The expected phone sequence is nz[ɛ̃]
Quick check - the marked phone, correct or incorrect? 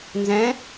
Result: correct